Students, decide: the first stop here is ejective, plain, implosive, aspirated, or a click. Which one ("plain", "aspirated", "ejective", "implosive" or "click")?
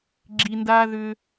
click